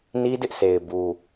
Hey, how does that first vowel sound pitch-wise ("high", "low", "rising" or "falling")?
high